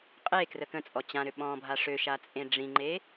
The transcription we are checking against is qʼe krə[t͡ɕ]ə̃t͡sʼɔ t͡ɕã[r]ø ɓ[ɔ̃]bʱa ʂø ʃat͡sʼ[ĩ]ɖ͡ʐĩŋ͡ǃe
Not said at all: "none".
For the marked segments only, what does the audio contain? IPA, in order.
k, ɾ, ɔ̃, ẽ

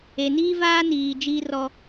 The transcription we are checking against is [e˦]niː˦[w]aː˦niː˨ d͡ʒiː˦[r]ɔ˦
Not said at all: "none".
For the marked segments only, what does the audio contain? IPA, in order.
e˨, v, r

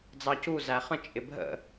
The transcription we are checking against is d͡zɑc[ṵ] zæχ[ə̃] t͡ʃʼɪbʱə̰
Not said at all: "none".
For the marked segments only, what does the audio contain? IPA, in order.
u, ə̃

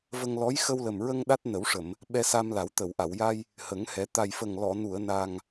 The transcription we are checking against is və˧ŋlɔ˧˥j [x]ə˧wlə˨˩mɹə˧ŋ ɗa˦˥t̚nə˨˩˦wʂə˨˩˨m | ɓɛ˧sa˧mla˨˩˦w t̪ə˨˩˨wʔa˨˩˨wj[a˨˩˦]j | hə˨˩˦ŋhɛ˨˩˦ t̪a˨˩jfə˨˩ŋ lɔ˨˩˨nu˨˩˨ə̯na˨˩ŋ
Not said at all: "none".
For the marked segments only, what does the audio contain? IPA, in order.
x, a˧

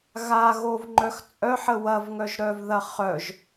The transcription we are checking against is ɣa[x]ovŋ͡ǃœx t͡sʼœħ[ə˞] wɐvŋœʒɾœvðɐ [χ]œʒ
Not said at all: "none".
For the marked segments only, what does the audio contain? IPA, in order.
ɣ, ə, χ

